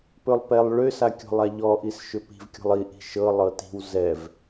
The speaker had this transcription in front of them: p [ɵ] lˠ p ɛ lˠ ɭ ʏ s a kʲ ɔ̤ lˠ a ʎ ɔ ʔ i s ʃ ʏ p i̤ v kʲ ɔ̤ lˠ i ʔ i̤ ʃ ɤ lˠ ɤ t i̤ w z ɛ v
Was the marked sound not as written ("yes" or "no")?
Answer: no